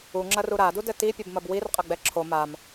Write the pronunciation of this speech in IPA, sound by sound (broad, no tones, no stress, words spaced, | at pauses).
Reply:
uŋ͡ǁɐru ɾadudɘ tipʲɘbmɐb wirqʼɐɡ͡bɛ ǁʰo mam